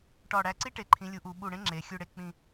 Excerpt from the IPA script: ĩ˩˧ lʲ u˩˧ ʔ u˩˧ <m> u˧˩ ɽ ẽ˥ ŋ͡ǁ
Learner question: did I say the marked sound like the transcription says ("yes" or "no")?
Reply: no